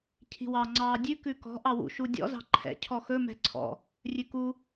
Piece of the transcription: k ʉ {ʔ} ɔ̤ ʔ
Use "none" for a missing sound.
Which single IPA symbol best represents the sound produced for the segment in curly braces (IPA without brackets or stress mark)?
k